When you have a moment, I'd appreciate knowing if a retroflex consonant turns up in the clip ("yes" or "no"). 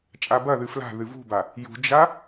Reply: no